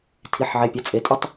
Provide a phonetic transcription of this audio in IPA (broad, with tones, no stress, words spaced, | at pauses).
tʰi˩˧ħʕe˩˧˩pʲɐ˩˧˩ t͡sʼe˩˧tʼʉ˥˧tˤ